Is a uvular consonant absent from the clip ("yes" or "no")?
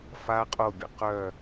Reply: no